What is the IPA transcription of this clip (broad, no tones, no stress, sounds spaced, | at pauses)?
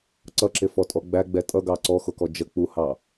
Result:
ǀ ʌ ǁ ɪ f ɔ tʼ ɔ ɡ͡b æ ɡ͡b ɛ tʼ ʌ ɡ ɑ ǀ ɔ x ʊ k ɔ d͡ʒ ə k͡p u h ɑ